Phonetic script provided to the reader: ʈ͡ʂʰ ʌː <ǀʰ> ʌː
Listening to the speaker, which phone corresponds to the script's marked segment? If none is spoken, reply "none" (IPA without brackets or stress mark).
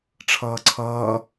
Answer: ǀʰ